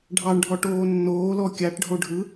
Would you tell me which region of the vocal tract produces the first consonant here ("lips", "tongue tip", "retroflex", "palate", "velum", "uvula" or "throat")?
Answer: retroflex